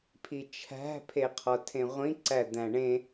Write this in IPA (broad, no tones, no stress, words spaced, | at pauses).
pʰit͡ʃʰæ̤ pʰeqʰɒtʰẽʁʷĩ ǀæd̪æ̃ɳẽ